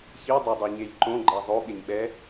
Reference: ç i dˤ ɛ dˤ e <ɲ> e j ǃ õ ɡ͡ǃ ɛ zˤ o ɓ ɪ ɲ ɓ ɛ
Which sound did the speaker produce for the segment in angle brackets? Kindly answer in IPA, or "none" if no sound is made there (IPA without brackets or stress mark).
ɲ